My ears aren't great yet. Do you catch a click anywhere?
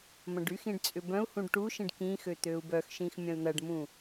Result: no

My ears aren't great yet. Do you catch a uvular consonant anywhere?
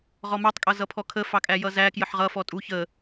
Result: yes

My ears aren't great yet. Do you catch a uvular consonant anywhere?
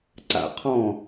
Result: yes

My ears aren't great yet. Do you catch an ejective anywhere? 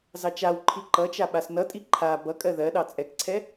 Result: yes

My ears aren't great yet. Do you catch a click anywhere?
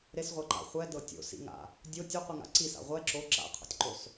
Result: yes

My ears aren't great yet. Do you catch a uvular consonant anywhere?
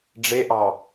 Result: no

